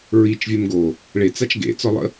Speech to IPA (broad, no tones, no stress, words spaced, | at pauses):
ɹit͡ʃ vʲɛmɡo | ɭe t͡sat͡ʃɡḛt͡sɔlˠə̰